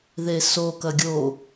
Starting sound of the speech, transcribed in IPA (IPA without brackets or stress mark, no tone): ð